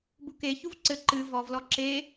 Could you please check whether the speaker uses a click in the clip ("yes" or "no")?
yes